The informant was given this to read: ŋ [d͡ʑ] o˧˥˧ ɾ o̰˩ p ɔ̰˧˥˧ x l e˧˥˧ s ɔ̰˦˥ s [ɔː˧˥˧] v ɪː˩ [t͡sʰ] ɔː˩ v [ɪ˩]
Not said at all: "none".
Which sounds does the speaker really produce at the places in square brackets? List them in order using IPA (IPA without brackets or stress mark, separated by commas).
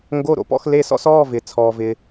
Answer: ɡ, ɔː˧˥˧, t͡sʰ, ɪ˩